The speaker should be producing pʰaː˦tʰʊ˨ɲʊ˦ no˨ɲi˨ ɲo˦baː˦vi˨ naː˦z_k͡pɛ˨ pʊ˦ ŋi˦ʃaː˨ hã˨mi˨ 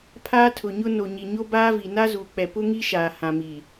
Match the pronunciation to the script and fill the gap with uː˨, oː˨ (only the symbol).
uː˨